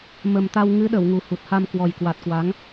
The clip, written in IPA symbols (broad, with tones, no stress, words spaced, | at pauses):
mə˨˩mt̪a˧w ŋɨ˨˦ɗə˧˩w ŋu˨˩hu˨˩t̚ha˧m kwɔ˨˩jkwa˨˩t̚kwa˨˦ŋ